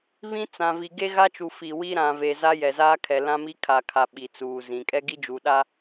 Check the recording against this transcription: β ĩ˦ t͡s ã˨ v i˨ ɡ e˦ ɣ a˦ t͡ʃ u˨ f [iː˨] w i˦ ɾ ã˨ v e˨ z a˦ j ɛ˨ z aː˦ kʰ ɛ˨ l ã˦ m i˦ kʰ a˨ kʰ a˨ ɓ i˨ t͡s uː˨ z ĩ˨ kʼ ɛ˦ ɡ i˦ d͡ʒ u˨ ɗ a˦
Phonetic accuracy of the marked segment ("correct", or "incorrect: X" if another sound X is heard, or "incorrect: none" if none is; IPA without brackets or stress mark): incorrect: i˨